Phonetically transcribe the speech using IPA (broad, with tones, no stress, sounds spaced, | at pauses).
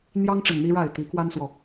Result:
n̪ j ɑ˦ ŋ ʈ͡ʂ ə˨˩ n n̪ i˦ ɻ a˥˨ ɪ̯ t̪ i˨˦ k w a˦ n s w ɔ˨